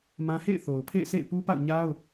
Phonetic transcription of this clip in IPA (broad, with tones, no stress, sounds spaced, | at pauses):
m ã˦ h ḛ˦˨ ɪ̯ θ o˨ ʊ̯ pʰ ḛ˦˨ ɪ̯ sʰ ḛ˦˨ ɪ̯ p u˦ p a̰˦˨ ʊ̯ ɲ a˦ ʊ̯